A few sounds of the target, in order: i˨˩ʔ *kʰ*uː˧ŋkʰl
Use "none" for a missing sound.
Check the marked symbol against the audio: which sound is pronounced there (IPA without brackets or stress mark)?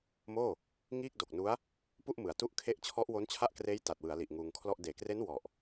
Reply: ŋ